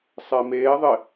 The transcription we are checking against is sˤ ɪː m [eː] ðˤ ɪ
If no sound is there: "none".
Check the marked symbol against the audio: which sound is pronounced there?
eː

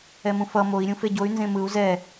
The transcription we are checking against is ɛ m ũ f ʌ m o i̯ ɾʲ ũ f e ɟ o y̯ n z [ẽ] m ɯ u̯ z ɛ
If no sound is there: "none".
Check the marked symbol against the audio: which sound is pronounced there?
ẽ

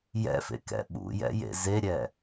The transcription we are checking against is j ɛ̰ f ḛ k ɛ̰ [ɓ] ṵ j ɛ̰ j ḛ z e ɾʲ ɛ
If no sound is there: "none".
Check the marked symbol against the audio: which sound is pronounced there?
ɓ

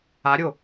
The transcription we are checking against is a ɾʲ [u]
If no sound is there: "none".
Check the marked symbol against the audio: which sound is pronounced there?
o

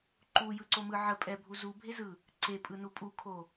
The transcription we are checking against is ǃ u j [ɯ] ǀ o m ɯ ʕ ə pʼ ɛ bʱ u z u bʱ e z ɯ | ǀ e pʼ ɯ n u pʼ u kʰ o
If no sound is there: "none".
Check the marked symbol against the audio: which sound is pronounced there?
ɯ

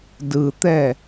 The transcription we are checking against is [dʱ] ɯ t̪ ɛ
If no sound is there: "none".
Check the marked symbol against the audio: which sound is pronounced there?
d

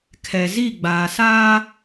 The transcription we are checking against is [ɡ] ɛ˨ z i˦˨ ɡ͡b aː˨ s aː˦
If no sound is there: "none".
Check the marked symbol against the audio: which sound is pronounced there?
kʰ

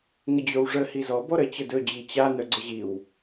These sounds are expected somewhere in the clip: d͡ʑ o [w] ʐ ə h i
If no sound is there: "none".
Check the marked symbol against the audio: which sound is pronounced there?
w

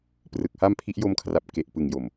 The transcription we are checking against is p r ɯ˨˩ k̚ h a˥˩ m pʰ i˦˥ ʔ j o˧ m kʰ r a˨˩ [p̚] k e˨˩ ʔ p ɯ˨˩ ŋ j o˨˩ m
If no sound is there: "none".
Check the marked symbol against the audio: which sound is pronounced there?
p̚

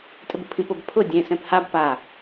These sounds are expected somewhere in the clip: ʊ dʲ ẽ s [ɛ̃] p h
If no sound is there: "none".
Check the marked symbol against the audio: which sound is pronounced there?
ɛ̃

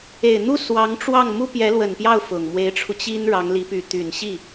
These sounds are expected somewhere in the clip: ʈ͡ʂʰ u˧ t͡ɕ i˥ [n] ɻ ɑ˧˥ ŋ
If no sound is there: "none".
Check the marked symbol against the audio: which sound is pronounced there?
n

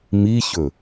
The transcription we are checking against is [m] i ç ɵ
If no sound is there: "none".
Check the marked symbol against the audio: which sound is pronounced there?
m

